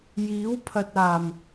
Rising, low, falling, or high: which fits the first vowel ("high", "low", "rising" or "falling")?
rising